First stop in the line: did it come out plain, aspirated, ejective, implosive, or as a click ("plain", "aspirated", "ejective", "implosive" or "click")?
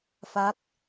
plain